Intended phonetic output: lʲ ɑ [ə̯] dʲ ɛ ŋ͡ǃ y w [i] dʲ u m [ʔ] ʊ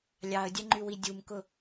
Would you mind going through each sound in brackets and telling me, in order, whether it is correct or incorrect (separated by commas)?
correct, correct, incorrect